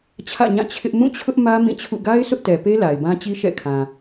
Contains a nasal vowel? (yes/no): yes